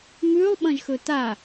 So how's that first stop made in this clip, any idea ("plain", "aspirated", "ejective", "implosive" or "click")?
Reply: implosive